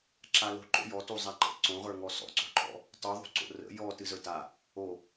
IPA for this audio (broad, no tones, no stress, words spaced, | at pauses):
ǁalo̤ǃo̰ jɔ tuzˤaǃə̰ ǀõʁə˞ ŋɔsɔ̰ǀo̤ǃɔ̰ | tˤuðˤṳǀo̰ rə̰ jɔ tɨzə˞ta | o